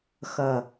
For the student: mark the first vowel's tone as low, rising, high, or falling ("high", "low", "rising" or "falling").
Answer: low